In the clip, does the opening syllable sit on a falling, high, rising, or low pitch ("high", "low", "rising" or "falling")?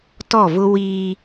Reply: falling